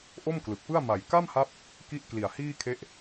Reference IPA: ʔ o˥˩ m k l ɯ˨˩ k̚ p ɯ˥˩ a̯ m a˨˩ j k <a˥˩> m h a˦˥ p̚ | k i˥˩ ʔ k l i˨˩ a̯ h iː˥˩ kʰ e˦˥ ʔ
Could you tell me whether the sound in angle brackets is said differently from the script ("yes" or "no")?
no